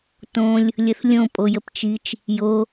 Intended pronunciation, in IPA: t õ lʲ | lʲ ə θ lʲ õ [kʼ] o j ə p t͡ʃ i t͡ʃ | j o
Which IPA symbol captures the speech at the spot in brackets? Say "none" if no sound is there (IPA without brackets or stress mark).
pʼ